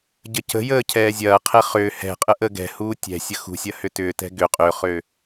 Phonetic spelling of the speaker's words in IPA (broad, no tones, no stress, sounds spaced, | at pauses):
ɟ ə c ə̤ j əː cʰ ɛː zʲ ɐː qʰ ɛ χ ʏː h ɛ̤ qʼ ə ʔ ə ɡ ɛ̤ h uː tʲ ɛ̤ sʲ ə x ṳ sʲ ɐ h ʏ t ʏː t ɛ̤ ɡ ʏ qʼ ø χ ø